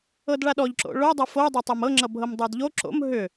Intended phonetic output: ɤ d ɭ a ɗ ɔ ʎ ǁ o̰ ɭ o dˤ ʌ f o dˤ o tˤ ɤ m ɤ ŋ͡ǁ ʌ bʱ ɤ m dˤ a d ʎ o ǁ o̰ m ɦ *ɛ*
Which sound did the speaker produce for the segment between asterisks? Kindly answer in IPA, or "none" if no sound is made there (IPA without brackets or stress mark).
ʏ